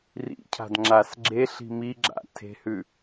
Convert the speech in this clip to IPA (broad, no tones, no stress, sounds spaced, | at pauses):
r ḭ cʰ a̤ d ŋ͡ǁ a s ɡ͡ǁ e ɬ i̤ m i ɡ͡ǁ a̰ tʰ e̤ h ʉ